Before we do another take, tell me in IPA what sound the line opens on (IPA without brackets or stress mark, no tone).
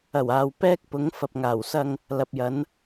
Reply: ɐ